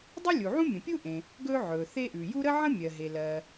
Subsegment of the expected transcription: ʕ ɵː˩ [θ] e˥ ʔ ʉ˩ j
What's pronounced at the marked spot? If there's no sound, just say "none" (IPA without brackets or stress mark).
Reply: θ